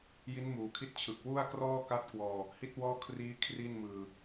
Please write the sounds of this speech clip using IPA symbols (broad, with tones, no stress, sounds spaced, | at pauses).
j i˦˥ n m uː˩˦ kʰ i˦˥ t̚ t͡ɕʰ ɯ˨˩ k̚ w u˥˩ a̯ k r ɔː˥˩ k a˦˥ t̚ k w ɔː˧ | h i˦˥ t̚ w ɔː˥˩ kʰ r iː˦˥ kʰ r i˥˩ n m ɯː˧